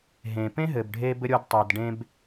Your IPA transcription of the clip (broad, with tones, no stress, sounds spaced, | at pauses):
ɦ ẽ˩ p ẽ˥ ɦ ɘ˩ b ɖʱ e˥ b ɘ˥ ɾʲ o˥ d tˤ e˩ d ɖ ẽ˥ b